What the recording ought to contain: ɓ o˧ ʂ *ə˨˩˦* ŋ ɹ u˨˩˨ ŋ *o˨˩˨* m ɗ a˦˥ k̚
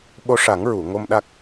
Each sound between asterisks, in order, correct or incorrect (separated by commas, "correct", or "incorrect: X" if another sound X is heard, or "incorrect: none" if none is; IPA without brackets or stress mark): incorrect: a˨˩˦, incorrect: o˧